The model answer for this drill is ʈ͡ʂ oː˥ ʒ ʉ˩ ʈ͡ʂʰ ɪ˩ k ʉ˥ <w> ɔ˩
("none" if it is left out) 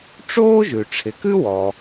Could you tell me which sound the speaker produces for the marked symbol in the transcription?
w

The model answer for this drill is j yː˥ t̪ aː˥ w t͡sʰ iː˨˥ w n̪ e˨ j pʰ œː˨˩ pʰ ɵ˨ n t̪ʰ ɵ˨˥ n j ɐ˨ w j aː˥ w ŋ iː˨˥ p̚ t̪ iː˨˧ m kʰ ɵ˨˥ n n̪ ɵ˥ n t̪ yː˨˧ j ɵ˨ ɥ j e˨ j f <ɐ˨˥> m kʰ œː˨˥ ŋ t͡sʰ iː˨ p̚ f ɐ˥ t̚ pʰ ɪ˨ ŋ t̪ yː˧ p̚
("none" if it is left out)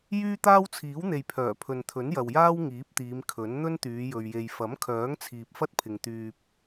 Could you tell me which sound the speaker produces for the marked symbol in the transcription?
ɐ˨˥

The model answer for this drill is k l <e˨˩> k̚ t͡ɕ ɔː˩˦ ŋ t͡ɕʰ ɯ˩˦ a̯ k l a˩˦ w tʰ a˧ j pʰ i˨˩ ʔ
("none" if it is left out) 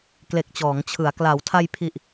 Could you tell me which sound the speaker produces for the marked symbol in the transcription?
e˨˩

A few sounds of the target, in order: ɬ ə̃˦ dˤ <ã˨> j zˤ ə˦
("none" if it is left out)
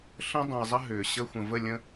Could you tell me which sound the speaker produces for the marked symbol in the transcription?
ə̃˨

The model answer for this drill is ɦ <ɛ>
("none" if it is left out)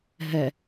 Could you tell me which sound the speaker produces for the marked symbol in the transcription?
ɛ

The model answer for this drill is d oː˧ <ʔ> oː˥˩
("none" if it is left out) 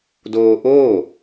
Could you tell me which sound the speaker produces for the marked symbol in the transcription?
ʔ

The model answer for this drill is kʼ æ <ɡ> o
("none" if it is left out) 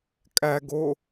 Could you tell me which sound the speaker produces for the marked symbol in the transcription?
ɡ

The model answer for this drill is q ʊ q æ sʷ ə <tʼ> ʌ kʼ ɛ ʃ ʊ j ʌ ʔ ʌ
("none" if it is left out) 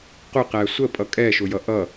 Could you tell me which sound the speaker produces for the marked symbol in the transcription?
pʼ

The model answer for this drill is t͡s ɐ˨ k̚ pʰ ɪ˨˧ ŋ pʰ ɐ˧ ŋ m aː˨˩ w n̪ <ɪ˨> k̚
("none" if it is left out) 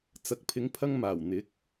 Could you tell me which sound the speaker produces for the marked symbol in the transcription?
ɪ˨˥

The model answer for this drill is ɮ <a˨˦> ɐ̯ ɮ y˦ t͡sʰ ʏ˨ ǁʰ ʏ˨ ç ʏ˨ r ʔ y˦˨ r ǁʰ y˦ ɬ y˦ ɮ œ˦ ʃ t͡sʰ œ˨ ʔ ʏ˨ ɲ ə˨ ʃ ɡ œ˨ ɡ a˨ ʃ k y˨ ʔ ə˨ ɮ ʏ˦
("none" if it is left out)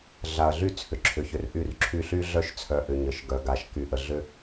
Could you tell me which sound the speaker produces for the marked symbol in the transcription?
a˨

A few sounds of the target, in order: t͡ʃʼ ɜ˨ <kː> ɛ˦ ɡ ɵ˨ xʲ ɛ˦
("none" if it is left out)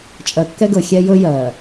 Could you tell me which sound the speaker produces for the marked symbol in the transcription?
kː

